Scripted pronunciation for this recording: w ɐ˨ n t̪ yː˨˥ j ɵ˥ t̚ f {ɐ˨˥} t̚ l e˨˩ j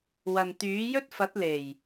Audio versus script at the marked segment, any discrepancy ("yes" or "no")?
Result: no